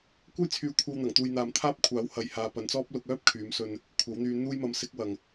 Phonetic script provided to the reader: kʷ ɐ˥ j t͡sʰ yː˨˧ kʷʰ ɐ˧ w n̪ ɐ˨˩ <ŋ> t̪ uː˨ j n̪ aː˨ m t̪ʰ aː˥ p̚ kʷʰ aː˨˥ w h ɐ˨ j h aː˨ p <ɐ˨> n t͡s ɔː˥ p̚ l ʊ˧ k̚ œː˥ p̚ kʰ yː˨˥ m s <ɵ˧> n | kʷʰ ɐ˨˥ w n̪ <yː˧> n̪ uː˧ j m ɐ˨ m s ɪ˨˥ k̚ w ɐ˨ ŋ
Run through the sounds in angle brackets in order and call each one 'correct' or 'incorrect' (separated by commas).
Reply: correct, correct, correct, correct